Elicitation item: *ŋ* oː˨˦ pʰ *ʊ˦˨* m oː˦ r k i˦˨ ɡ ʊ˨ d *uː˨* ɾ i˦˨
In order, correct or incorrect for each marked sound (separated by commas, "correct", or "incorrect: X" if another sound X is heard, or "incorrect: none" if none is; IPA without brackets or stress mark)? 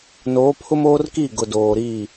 incorrect: n, incorrect: ʊ˦, incorrect: oː˨